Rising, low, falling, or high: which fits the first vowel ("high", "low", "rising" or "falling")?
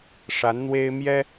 rising